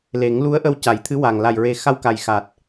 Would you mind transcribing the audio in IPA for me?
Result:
le˨˩˦ŋ lu˧˥ə̯ʔə˧w ca˨˩˦jt̪ʰɨ˧˥wa˨˩ŋ la˨˩jɹe˨˩ xa˧wka˨˩jxa˨˩t̚

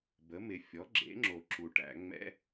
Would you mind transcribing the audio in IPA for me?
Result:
bə˩˥mɪ˨ fʲɔ˩˥ɡ͡ǁḛ˩˥ŋ͡ǁo˨ ǁu˨ʈæ̰˨˩˦ ŋ͡mɛ̰˦˥

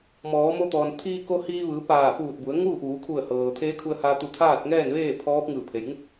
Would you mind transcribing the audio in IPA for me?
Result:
mɔː˩˧mo˧t̪ɔː˩n t̪ʰiː˧ko˧ hiː˧ʋɯː˩˧ paː˧˩puː˧˩t̚bu˩˧ə̯ ŋuː˥˨ʔuː˩˧kʰu˧˩ə̯ hɤː˩t̪ʰeː˧˥kʰu˧ə̯haː˧ t̪u˧˩t̪ʰaː˥˨t̚ŋɛː˥˨nʋeː˥˨ pʰɔː˧˥p̚ ŋɯː˧˩pʰe˩j ŋu˥˨k̚

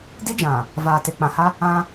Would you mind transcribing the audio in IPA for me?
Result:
di˦d͡ʒã˨ | vaː˨te˨k͡pã˨ha˦ | ã˦

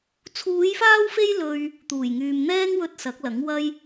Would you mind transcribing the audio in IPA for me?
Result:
t͡sʰuː˨˧jfaː˧wfe˧j lɵ˧ɥ | t̪uː˨˩jŋyː˨mn̪ɛː˥ŋwɵ˧t̚ sɐ˨˥k̚lɐ˨˥ŋ wɐ˥j

